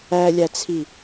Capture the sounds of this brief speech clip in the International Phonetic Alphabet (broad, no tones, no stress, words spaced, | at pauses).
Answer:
ælʲæt͡sʰi